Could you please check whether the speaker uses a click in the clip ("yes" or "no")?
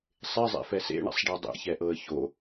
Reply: no